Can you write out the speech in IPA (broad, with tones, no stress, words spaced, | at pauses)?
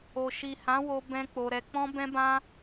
o˨ ʃi˨hã˨˦wo˧ bɛ̃˦k͡po˧ ɾɛ˧ k͡pɔ̃˦bɛ̃˦bã˦